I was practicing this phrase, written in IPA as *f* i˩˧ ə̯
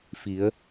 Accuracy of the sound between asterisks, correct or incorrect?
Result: correct